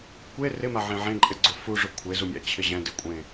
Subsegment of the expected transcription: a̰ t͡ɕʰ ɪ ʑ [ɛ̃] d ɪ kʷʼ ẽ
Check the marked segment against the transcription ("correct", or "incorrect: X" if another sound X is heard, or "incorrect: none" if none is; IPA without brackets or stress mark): correct